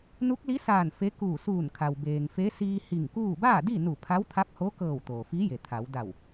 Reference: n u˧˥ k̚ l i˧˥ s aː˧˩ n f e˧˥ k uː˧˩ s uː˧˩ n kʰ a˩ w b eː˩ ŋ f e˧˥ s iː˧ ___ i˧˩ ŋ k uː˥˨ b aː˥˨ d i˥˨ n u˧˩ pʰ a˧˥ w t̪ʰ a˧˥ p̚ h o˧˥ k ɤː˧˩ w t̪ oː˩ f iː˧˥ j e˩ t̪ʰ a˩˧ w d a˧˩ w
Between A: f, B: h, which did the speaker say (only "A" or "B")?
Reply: B